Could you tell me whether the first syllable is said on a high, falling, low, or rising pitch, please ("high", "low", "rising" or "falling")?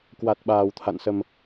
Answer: low